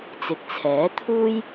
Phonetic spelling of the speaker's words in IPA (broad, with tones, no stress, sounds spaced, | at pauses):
t͡s ɪ˨ k̚ t͡sʰ ɛː˨˥ t̪ʰ uː˥ j